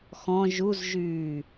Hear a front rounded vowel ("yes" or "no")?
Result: yes